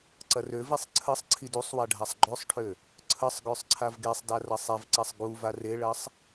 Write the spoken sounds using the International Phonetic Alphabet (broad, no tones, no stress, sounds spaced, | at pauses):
ǀ ɐ r ø v i sˤ ǀʰ ə sˤ ǀʰ i d u sˤ w a ɖʱ a sˤ ɡ͡ǃ ø sˤ ʈʰ ø | ǀʰ ə sˤ ɡ ø sˤ ǀʰ a v ɡ e sˤ d a r ɐ sˤ e v ǀ ɛ sˤ ɡ u v a r e ɭ ɐ sˤ